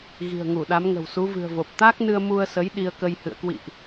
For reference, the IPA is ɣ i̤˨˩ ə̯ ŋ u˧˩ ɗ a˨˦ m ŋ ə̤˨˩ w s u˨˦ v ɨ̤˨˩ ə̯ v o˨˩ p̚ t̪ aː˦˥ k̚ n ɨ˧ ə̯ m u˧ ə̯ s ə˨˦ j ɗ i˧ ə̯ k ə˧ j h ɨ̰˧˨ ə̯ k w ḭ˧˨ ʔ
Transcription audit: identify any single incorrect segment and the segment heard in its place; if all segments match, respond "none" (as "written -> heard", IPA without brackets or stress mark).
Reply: none